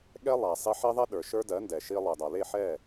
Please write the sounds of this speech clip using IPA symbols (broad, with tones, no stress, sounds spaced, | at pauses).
ɠ ɛ˦ lˠ a˨ sˤ e˧ ħ e˦ ðˤ ɛ˦ ɗ ə˞˨ ʃ ə˞˦ d ɜ˨˦ n d ɛ˨ ʃ i˧ lˠ e˨ dˤ a˨ l e˦˨ ħ ɛ˦˨